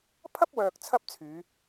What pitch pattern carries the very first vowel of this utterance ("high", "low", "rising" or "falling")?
high